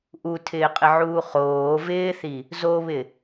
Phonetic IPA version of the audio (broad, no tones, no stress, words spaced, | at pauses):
ʔutʰɪːqʼɪʕuː χoː vɪːθi | zoβɪ